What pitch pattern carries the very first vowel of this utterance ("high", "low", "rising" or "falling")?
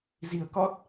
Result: low